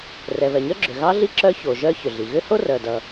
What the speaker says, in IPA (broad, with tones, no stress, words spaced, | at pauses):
rɛ˩βɛ˩ɲœ˥ ɡ͡ǁʏ˩ ɣɑ˥ɮi˥ ǁœ˥ço˩ʒœ˥ çʏ˩ɮi˩ ɣʏ˥ho˥rœ˩dʌ˩